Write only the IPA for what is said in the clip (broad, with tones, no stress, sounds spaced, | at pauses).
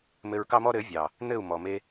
m ɘ˧ ɹ k ɑ˦ m ɔ˦ ɾ ɘ˨˦ vʲ ɑ˨ | n̪ ɘ˦˨ u̯ m ɔ˨ m e˧